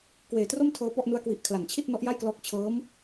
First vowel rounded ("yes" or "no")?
no